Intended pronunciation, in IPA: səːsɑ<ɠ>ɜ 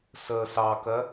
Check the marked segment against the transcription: incorrect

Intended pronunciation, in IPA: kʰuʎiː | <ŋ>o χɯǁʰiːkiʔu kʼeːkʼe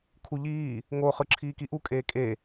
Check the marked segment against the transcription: correct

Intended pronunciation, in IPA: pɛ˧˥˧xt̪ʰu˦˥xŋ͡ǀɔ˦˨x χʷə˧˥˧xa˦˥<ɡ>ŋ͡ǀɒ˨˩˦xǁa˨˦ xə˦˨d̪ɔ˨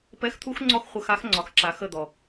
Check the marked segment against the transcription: incorrect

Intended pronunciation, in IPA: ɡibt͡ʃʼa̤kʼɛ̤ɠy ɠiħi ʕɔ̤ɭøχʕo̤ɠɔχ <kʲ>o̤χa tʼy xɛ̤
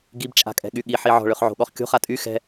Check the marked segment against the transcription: correct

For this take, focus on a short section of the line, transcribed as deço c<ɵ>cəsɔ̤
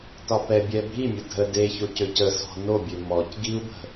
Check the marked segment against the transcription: incorrect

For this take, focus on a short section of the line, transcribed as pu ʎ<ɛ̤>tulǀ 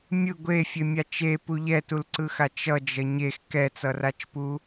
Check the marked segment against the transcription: incorrect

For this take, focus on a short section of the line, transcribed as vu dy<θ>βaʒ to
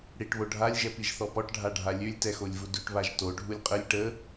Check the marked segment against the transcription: incorrect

